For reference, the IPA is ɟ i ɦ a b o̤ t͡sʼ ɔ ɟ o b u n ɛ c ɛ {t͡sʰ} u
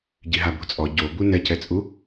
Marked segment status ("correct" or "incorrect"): incorrect